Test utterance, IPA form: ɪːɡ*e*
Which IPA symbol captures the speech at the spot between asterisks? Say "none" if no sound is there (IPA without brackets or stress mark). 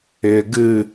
ɨ